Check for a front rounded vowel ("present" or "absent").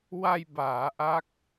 absent